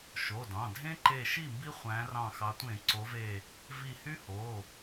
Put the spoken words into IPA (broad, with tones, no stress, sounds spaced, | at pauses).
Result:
ʃ o˩˧˩ d ɑ̃˩˧˩ dʱ ẽ˦˥ ǃ e˧˩ ʃ i˥˩ m b i˦˥ χʷ æ̃˨˦ r ɑ̃˧˩ x ɑ˨˦ tʷ ẽ˧˩˧ ǀ o˨˦ v e˧˩ | v i˧˩ h y˦˥ h o˩˧˩